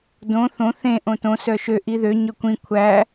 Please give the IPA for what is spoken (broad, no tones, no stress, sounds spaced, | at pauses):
d õ θ õ θ ẽ ʔ õ t õ s œ ʃ ø ʔ i ð ø ɲ ɵ kʷ ĩ kʷʰ æ